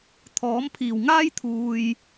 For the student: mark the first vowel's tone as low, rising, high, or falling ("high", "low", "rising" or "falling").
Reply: rising